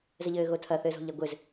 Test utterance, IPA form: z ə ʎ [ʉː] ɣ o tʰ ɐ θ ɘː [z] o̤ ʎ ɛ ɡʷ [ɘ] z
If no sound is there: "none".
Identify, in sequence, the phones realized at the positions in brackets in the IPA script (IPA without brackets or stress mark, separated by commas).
ɘː, z, ɘ